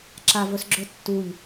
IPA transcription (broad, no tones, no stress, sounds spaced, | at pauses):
ǁ a v ɵ s ɡ͡ǁ ɵ tː u ʎ